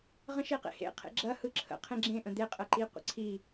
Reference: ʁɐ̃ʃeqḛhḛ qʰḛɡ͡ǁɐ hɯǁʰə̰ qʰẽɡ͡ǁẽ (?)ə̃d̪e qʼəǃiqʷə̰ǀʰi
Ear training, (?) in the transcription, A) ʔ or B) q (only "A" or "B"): A